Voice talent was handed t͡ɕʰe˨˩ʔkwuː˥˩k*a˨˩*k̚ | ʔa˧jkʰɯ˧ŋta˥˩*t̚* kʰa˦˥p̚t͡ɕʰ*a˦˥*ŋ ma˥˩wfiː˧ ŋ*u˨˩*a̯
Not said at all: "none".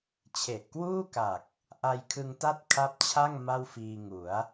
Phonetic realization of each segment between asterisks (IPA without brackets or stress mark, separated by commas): a˨˩, t̚, a˥˩, u˩˦